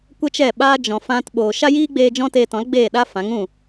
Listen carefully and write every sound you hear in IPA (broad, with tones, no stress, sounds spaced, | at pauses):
kʷ ə˦ t͡ʃ ɛ˦˨ ɓ aː˦ d͡ʒ ɔ̃˨ f ã˧ t ɓ oː˨ ʃ a˦ j iː˦ ɡ͡b eː˧ d͡ʒ ɔ̃˦ t eː˧ t ɔ̃˨˦ l ɡ͡b eː˦˨ ɗ a˦ f ã˨˦ ŋ ũ˦˨